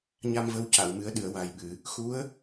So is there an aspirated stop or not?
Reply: no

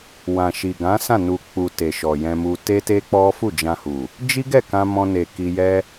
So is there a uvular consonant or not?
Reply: no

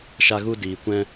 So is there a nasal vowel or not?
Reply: yes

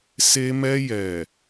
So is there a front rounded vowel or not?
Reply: no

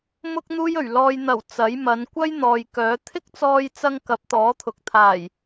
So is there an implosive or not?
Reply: no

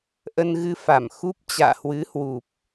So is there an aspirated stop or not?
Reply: no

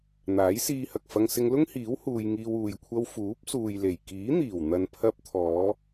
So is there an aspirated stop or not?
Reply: yes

